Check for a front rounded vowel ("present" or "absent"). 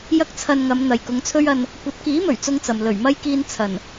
absent